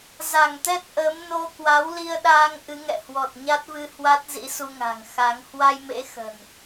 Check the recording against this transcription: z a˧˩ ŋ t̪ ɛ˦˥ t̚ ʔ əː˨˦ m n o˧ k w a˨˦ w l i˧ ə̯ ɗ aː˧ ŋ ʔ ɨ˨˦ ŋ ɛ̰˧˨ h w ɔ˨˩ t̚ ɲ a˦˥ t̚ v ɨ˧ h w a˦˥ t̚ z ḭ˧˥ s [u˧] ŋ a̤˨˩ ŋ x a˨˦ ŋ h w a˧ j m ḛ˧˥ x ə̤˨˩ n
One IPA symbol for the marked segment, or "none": u˧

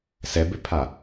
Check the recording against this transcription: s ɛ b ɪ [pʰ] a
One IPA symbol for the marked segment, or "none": pʰ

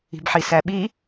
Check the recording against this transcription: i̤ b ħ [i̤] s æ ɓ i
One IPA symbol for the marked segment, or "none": i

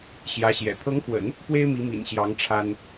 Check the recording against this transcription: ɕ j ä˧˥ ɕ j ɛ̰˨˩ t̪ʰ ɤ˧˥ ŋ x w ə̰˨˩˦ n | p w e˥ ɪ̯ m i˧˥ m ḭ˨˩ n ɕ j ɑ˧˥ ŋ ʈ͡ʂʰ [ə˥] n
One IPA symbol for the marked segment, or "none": a˥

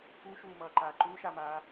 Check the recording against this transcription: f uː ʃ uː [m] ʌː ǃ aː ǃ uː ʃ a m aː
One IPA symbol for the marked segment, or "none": m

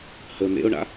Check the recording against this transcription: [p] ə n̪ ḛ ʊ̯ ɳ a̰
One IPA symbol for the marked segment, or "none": h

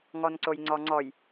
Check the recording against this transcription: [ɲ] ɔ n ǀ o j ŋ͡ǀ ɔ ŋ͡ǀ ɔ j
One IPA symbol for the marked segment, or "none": ŋ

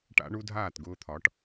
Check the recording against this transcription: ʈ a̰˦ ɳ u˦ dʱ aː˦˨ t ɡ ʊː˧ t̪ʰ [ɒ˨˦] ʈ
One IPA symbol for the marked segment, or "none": ɒ˨˦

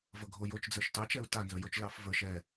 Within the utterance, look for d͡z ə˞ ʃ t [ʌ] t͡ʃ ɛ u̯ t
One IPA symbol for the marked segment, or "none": ɑ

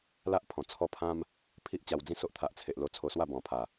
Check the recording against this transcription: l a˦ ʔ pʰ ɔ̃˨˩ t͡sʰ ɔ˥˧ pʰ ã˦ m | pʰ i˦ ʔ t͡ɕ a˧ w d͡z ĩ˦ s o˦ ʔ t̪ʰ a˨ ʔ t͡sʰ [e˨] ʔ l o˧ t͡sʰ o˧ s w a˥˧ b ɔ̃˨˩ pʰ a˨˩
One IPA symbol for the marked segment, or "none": e˨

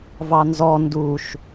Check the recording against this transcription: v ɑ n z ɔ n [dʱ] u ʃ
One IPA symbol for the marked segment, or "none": d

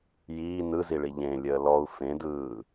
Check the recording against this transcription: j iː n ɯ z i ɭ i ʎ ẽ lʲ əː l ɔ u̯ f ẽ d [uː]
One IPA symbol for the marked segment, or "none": ɯː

